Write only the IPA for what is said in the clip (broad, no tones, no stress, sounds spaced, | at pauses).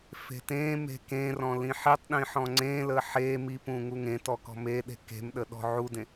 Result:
f e̤ t ẽ m e̤ k ẽ r ɔ̃ l ĩ ħ i tˤ ɗ ĩ ħ ɔ̃ ŋ͡ǀ ẽ l ə ħ e m i p ũ ŋ u ŋ ẽ t ɔ k ɔ̤ m e ɗ e̤ k e̤ m ɗ ə ɗ ɔ̤ ʕ u d ẽ